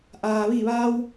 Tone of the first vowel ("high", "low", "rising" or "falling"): low